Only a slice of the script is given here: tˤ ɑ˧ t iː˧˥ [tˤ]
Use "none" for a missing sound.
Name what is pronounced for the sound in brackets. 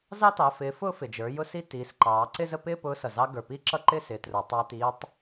tˤ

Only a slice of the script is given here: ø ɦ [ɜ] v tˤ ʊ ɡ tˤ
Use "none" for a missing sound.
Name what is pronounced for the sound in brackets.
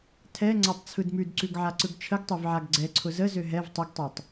ɛ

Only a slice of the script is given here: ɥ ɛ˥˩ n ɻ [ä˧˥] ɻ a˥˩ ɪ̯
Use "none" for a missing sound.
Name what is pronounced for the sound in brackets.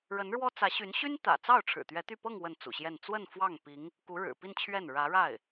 ä˧˥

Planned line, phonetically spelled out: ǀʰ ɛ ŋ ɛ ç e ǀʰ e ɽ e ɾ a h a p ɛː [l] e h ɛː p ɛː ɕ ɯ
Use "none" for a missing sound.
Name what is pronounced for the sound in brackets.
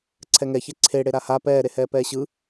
ɾ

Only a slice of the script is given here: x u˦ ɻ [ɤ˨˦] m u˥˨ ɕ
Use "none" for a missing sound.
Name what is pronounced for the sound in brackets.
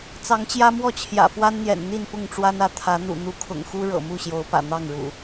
ɤ̰˨˩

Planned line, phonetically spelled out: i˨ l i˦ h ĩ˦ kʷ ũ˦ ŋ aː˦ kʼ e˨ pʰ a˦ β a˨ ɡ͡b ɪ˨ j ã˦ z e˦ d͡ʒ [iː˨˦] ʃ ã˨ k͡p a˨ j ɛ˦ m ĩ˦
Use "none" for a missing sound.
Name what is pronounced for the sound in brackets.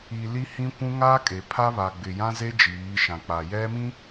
iː˨˦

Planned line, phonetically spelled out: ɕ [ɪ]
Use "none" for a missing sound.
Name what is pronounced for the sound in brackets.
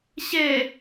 ɛ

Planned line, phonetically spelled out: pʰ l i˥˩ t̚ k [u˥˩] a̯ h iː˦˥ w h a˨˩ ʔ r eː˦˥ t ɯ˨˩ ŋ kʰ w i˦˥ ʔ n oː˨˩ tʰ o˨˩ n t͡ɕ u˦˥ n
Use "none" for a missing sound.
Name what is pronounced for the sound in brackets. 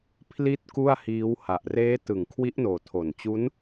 u˥˩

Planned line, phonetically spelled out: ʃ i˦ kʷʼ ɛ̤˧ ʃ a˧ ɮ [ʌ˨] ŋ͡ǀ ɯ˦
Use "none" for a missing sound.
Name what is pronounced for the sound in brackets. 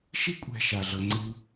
ʌ˧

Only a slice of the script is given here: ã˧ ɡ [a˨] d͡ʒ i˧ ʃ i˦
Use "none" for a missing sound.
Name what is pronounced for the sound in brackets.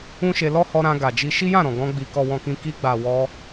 a˨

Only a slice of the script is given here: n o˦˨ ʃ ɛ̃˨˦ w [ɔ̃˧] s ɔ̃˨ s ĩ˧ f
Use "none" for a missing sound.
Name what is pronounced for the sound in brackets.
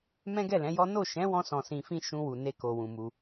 ɔ̃˧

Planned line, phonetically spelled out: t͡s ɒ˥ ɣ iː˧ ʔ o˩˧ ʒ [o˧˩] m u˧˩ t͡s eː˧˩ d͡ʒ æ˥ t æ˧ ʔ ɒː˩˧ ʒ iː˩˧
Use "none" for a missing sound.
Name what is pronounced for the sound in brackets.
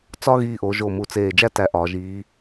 o˧˩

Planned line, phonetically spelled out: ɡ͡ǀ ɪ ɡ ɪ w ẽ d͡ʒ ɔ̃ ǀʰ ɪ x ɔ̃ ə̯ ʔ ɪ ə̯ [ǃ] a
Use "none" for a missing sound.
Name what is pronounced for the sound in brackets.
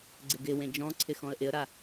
ɾ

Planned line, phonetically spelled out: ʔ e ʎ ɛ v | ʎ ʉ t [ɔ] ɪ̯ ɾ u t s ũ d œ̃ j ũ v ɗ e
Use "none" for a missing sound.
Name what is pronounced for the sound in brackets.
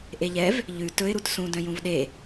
ɵ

